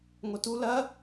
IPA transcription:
ŋʷ ɐ t u l ɐ

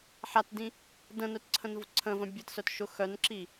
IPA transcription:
ħ a t d ĩ | d ə̃ n œ t ǀʰ ə̃ n v ʊ ǀʰ ə̃ v ə̃ bʲ ə t s œ t ʃ ʊ x œ n ǁ i

